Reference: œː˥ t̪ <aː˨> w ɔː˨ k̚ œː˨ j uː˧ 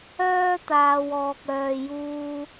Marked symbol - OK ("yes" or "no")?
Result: yes